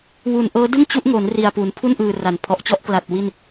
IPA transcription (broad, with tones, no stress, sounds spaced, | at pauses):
w u˨˩ n ʔ ɤː˦˥ d ɯ˥˩ ŋ t͡ɕ u˦˥ ʔ ŋ o˩˦ n r i˨˩ a̯ p u˩˦ n pʰ u˥˩ n ʔ ɯː˨˩ r a˩˦ n pʰ ɔ˨˩ ʔ t͡ɕ ɔ˦˥ ʔ k l a˨˩ t̚ w i˥˩ n